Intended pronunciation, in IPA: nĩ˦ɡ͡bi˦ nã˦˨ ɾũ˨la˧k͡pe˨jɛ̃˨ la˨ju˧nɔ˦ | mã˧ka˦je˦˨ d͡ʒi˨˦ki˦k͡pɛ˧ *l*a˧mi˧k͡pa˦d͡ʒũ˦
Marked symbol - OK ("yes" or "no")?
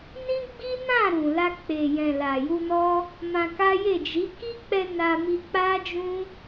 no